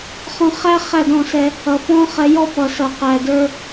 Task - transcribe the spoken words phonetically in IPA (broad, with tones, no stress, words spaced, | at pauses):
χɔ̃˧χæ˦ χæ˦˨dɔ̃˦˨sɛ˧ | ʌ˨fɔ̃˦χɛ˧jɔ˦ pʌ˨sʌ˨qæ˨də˞˧